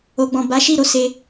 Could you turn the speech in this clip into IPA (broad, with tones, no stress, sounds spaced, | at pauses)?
o˨ ɡ͡b ɔ̃˨ b a˨˦ ʃ i˦˨ ɾ o˨˦ s e˧